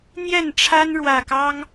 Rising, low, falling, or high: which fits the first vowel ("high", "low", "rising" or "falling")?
falling